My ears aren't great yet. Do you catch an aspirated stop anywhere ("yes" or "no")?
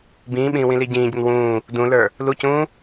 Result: no